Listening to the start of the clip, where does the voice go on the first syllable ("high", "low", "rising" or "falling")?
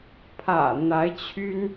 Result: low